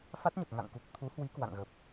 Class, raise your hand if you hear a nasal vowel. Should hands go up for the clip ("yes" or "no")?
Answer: no